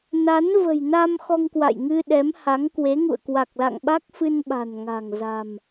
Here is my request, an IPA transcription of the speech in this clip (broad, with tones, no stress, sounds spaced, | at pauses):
n a˨˦ n v ə̤˨˩ j n a˧ m x ɔ˧ ŋ k w a̰˧˨ j ŋ ɨ˧ ɗ ɛ˨˦ m h a˨˦ ŋ k w e˨˦ ŋ ṵ˧˨ ə̯ k w a˨˩ k̚ l a̰˧˨ ŋ ɓ a˦˥ k̚ f ɨ˧ n ɓ a̤˨˩ n ŋ a̤˨˩ ŋ z a̤˨˩ m